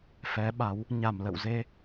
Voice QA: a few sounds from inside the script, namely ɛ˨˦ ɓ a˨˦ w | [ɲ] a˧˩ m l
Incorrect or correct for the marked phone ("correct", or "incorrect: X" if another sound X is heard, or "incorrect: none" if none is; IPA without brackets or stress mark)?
correct